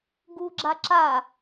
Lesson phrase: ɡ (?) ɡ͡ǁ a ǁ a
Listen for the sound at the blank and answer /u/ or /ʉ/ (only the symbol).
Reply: u